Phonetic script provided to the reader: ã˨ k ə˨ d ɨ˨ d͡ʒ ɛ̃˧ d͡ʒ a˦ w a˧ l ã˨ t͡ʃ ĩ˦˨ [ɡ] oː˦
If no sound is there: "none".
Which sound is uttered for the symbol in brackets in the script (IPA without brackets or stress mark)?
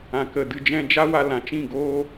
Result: ɡ